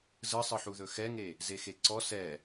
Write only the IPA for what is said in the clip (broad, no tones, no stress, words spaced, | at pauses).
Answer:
zɯsˤɯħuðɵ xɛŋe | zexeǀɔ sɛ